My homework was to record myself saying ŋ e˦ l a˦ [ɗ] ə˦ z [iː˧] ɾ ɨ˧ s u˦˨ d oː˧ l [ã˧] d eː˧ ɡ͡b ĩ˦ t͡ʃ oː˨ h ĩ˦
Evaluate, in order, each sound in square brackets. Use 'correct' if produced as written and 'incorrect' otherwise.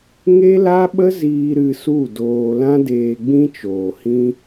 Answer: incorrect: ɓ, correct, incorrect: ã˦

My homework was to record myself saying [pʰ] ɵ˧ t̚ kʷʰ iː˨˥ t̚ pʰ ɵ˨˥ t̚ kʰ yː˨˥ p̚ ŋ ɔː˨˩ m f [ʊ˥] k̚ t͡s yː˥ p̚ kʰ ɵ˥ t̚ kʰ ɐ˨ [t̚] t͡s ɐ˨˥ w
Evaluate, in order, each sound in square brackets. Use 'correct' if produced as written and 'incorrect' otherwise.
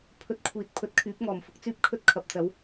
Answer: correct, correct, incorrect: p̚

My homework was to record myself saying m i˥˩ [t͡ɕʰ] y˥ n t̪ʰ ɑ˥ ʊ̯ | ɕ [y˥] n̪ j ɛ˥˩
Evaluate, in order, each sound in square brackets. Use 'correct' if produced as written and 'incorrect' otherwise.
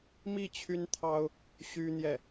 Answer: correct, correct

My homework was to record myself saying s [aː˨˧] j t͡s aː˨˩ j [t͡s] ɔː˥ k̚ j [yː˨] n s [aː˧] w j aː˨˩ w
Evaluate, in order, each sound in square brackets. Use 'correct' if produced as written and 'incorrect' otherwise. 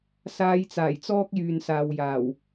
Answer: incorrect: aː˧, correct, correct, incorrect: aː˨

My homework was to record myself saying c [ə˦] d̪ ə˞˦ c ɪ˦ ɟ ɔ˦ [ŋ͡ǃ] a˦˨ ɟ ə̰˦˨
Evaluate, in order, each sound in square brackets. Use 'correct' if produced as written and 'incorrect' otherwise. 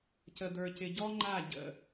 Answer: correct, correct

